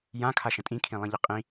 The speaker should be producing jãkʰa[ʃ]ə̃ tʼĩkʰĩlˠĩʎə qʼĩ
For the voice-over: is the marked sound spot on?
yes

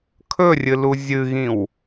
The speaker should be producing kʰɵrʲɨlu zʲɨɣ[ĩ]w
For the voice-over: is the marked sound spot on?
yes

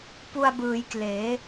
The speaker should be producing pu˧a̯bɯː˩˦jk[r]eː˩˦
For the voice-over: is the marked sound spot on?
no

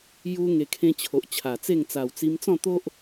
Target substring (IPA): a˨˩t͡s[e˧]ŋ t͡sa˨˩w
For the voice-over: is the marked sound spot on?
no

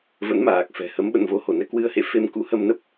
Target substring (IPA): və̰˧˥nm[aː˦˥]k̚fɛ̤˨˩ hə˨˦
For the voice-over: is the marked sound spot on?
no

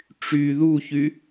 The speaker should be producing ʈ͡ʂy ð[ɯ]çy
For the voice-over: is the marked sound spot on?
no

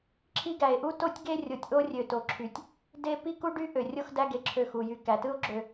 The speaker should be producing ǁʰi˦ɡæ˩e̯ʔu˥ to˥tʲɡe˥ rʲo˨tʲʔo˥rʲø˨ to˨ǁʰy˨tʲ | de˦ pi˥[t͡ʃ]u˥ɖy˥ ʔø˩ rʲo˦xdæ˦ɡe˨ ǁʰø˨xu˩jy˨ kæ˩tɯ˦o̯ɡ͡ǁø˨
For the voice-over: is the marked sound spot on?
no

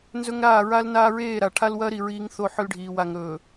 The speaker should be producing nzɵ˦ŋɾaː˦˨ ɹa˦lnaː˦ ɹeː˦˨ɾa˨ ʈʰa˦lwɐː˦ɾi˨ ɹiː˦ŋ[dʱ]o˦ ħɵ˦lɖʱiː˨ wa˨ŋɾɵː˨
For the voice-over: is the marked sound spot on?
no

